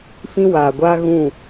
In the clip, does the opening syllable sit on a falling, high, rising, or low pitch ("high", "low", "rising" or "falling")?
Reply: high